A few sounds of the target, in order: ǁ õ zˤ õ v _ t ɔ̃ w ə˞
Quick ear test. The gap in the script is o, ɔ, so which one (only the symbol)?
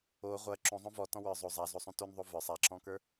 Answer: ɔ